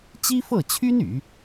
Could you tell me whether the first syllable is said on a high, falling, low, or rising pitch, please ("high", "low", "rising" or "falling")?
high